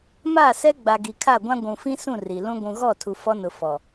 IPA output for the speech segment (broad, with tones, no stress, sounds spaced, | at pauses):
m aː˦˨ s ɛ˦ ɡ͡b a˨ ɡ i˨ kʰ a˦˨ ɡʷ ã˦ ɡʷ ũ˨ f ĩ˦ s ũ˦˨ r i˨ l ũ˦ ɡʷ ũ˨ ɣ ɔ˦˨ tʰ u˨ f ɔ˦ n ʊ˨ f ɔ˨